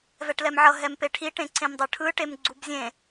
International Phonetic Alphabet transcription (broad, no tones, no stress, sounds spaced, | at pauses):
v ɛ ʈ l ɛ m ʕ ʌ ɦ ɛ m p e ʈʰ i ʈ ẽ ǀ ẽ m dˤ ɯ ʈʰ ɯ ʈ e m ɡ͡ǀ u b zʲ ẽ